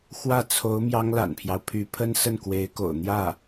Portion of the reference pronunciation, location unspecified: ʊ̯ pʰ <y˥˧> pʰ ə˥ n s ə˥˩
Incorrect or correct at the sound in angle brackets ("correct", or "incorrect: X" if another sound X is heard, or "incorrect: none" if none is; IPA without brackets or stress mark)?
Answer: incorrect: y˧˥